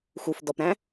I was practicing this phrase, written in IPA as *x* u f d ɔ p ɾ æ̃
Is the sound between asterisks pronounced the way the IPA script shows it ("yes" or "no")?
yes